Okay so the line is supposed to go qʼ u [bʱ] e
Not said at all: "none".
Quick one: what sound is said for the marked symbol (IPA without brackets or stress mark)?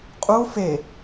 f